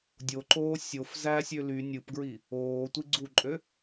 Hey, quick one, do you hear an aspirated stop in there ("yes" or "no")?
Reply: no